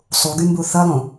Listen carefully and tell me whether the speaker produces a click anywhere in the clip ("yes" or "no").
no